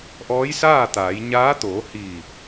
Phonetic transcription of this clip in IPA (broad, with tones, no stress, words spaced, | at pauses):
ʔɔː˧˥jsaː˥˨t̪aː˩˧jɲaː˧˥ t̪oː˩˧ hiː˧˩